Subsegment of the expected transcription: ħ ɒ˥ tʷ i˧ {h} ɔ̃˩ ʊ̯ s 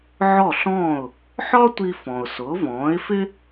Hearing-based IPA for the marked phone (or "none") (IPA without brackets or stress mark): f